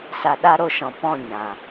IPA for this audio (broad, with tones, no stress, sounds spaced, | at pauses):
s a˧ ɗ a˦ ɾ o˧ ʃ ɔ̃˨ p ɔ̃˦˨ ɲ ã˨